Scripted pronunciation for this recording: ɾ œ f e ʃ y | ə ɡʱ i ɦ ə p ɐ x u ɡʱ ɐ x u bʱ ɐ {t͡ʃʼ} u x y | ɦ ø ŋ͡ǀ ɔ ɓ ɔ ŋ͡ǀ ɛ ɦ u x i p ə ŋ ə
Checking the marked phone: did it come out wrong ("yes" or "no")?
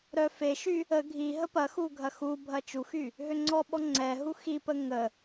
yes